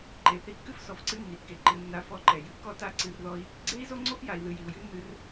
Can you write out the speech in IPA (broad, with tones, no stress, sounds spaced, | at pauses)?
ǃ e˨ θ i˨ kː ɨ˧ f s ɔ˨ f ǀ ɨ˦ nː i˨ kː e˨ ǃ ɨ˨ nː a˨ f ɔ˨ ǃ ɛ˨ j ɨ˨ kː ɔ˦ t a˦ ǀ ɨ˧ r ð ɔ˦ i̯ | ɡ͡ǀ e˦ i̯ z o˦ ŋ͡ǀ o˦ f j a˨ i̯ ð ɨ˨ j i˨ u̯ j ɨ˦ nː ɨ˧ r